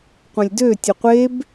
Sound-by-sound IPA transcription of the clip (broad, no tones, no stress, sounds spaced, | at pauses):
qʷ ɐ̃ lʲ d ø tʲ ə qʷ e b